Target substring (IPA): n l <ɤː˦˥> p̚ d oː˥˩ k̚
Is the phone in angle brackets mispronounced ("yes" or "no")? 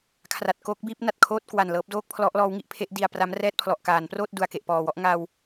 no